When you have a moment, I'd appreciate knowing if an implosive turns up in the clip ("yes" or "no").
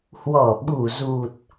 yes